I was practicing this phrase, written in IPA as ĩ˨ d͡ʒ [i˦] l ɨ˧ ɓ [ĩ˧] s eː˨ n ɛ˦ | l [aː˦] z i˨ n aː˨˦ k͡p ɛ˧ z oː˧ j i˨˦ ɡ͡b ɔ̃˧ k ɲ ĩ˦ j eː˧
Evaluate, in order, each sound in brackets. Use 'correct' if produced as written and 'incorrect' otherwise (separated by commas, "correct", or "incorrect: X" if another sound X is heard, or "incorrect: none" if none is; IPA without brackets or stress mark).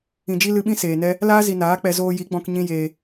correct, incorrect: ĩ˦, correct